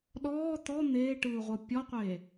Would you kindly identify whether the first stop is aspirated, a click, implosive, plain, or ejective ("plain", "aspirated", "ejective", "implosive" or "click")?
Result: implosive